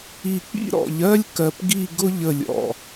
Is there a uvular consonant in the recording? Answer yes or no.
no